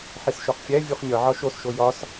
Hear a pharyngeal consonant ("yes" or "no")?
yes